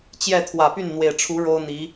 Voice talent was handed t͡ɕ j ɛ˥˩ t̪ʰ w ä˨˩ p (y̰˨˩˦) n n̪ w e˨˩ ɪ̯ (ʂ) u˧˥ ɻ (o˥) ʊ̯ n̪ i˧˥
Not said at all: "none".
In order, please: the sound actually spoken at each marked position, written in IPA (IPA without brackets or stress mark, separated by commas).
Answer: y˥˩, ʈ͡ʂʰ, o˥